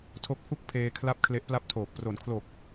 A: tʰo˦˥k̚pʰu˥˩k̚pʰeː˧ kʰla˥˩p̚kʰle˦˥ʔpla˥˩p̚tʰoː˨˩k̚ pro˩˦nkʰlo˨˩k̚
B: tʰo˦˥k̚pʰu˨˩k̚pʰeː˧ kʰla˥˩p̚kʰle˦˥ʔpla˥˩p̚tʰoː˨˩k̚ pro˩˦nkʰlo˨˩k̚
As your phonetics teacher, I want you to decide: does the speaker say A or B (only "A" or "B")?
A